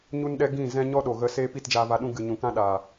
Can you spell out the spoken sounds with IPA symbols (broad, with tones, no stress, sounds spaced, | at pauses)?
ɲ u˦ n ɗ ɛ˦ ɡ ĩ˦˨ z ɛ̃˦ ɲ ɔ˦ ɗ o˨ ɣ ə˧ s eː˧ p i˦˨ t d͡ʒ aː˧ v a˧ ɗ ũ˦ ɡ ɨ˨ ɲ ũ˨ k ã˦ ɗ aː˨